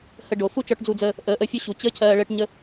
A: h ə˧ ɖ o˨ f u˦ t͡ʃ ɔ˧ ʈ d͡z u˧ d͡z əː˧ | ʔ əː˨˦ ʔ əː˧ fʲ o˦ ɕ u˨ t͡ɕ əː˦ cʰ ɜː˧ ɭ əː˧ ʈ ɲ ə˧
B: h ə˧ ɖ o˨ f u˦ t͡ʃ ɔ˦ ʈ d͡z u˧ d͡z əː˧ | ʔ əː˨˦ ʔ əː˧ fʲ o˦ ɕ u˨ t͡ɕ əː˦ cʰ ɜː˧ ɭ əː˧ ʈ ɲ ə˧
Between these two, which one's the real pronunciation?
A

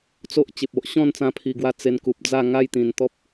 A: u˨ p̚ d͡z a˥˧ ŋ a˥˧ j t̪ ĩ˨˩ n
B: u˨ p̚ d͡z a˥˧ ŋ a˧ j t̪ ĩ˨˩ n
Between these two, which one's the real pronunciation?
A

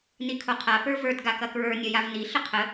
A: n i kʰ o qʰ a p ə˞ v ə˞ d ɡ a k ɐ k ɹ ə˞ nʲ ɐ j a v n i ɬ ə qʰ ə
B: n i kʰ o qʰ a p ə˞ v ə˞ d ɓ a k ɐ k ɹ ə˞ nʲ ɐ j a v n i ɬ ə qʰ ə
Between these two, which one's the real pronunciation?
A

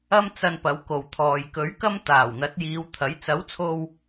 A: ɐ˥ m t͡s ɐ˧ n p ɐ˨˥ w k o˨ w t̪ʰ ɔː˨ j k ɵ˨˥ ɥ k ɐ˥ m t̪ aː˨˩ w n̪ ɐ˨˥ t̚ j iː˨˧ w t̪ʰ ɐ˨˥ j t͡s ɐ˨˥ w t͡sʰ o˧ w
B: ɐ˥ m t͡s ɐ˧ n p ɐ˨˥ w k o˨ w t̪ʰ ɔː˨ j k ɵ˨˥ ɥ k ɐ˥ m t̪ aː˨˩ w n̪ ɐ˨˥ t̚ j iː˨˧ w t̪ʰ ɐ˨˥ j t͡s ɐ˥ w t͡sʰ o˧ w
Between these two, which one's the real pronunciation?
A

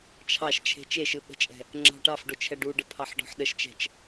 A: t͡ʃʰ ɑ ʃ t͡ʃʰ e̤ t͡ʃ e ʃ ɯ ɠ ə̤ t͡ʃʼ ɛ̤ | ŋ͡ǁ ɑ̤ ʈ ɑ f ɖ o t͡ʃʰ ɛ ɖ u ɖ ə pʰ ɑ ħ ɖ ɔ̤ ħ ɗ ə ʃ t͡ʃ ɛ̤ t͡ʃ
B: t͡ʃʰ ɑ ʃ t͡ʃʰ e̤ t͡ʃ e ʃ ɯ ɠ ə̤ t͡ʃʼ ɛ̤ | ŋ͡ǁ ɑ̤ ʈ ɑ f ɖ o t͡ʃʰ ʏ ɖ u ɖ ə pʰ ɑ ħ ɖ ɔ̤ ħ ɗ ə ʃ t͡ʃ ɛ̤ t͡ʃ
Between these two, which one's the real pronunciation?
A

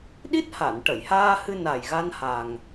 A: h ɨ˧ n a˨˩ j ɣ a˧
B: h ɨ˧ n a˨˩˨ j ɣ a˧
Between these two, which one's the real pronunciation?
A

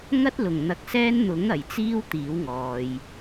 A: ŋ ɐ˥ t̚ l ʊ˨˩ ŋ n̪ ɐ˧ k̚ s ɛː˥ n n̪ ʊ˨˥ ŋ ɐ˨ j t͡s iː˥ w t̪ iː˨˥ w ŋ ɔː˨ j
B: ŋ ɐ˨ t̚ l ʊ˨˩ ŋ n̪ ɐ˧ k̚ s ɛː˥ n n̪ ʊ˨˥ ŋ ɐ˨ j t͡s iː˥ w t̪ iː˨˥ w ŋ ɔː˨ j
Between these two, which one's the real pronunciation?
A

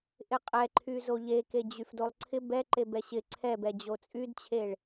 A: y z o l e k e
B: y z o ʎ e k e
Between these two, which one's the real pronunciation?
B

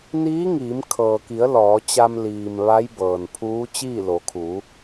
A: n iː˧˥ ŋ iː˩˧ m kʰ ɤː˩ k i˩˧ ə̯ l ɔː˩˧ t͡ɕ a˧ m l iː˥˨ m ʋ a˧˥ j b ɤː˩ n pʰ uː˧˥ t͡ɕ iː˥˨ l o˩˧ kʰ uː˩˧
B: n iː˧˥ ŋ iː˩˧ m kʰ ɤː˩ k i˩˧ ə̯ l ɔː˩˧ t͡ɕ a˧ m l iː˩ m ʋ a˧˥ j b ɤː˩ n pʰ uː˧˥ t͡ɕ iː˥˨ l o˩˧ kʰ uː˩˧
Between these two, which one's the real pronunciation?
B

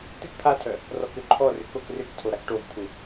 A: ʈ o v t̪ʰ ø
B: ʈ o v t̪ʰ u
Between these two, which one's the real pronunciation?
B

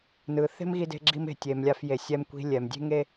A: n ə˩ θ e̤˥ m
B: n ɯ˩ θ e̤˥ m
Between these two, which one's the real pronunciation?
B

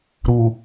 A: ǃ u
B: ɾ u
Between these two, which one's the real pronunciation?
B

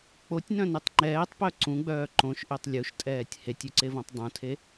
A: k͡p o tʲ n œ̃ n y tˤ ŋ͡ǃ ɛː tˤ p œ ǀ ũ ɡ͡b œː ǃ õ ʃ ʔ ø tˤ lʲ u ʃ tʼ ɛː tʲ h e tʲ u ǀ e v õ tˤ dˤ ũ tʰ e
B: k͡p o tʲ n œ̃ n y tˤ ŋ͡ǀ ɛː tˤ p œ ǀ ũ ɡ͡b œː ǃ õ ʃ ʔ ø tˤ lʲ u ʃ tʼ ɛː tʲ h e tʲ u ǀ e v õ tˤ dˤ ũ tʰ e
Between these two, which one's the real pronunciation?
A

